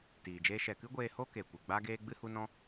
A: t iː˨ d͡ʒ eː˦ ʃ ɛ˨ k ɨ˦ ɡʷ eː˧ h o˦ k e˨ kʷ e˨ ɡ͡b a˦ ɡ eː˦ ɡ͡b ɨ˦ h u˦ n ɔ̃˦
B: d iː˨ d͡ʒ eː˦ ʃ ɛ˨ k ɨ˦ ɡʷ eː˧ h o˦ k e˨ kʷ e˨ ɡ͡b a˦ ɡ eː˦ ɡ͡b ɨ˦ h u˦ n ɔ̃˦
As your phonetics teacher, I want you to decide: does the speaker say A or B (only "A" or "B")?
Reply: A